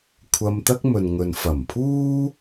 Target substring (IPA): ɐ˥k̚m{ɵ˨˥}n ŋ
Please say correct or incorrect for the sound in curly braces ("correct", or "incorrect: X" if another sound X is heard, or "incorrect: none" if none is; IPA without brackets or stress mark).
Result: incorrect: ɵ˨